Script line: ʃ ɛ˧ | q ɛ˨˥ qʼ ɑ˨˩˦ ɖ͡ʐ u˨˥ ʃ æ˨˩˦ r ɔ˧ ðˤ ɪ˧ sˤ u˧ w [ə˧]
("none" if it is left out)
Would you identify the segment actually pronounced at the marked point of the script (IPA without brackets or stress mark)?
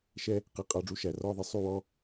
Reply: ɔ˧